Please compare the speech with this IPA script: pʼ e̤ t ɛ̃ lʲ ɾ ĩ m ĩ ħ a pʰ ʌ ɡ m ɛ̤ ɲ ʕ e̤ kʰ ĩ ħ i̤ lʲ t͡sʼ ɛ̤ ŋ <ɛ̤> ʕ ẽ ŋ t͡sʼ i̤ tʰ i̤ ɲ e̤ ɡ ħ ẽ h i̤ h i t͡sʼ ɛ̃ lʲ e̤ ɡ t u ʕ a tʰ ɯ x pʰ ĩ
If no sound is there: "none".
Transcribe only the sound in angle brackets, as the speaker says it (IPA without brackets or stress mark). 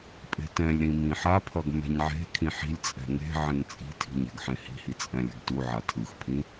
e̤